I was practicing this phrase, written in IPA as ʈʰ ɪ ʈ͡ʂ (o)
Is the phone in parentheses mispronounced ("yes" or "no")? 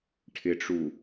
yes